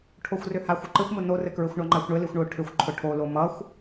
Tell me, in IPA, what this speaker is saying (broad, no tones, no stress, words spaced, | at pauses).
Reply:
ʈʰoxʷrʏhaxʷ ʊǃɘxʷmʊ norɘkɹɘxʷɳʌ ŋ͡ǃaxʷɳɘlixʷɳʊː ʈʰʏxʷ ǃʰʊʈʰolo mʌxʷ